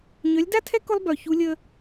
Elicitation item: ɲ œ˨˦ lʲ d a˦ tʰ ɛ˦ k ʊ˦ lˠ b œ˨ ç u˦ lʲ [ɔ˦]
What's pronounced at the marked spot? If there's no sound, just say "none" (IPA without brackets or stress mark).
ə˦